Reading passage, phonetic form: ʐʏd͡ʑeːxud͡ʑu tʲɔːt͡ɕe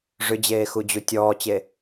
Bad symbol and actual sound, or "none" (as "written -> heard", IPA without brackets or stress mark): none